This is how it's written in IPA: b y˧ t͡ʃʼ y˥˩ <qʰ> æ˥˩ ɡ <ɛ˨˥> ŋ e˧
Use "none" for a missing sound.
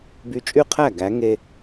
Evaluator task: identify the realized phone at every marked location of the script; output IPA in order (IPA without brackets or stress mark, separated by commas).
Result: qʰ, æ˨˥